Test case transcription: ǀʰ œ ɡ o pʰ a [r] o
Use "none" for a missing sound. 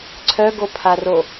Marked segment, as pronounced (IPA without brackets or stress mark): r